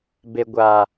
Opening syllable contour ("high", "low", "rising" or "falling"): low